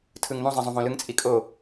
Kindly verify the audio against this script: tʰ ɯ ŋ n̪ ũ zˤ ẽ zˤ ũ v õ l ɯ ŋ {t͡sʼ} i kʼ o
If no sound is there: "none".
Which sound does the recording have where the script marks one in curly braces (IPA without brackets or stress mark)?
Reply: t͡sʼ